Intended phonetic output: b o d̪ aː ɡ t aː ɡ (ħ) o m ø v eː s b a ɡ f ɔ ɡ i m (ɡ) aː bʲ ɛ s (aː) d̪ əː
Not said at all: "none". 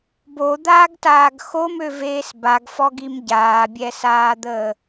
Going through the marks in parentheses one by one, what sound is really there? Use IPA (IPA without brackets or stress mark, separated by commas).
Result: x, ɟ, aː